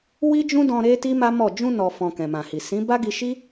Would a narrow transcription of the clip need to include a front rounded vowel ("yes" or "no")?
no